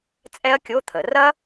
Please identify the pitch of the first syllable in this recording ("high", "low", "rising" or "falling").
high